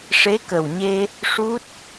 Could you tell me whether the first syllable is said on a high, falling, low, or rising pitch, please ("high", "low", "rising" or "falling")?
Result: rising